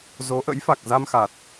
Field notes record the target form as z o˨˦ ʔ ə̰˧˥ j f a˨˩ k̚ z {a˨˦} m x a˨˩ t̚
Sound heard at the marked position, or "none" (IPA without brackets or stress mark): a˧